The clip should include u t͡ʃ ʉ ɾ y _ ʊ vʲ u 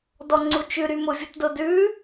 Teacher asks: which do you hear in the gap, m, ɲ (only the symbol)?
m